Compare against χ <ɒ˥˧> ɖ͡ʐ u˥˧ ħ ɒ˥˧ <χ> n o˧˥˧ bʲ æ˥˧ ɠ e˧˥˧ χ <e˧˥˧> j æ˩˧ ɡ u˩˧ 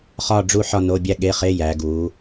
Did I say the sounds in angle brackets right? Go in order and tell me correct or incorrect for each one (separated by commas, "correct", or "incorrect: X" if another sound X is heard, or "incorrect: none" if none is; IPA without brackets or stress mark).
correct, incorrect: none, correct